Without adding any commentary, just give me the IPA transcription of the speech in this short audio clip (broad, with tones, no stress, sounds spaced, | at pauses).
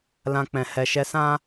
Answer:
l ã˧ k͡p ɛ̃˨ h ɛ˨ ʃ ɛ˧ s ã˦